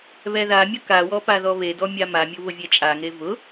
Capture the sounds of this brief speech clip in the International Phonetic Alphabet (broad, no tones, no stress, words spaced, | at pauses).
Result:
βɛðamʲʊ kawɔ paðɔβedɔ mʲamamʲʊ βʊvʲɛt͡ʃʼaŋe vʊ